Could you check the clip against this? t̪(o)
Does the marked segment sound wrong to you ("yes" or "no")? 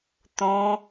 yes